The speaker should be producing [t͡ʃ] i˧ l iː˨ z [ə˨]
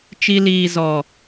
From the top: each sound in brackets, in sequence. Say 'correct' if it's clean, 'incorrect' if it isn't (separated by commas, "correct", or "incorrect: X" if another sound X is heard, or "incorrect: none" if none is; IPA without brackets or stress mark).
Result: correct, incorrect: ɔ˨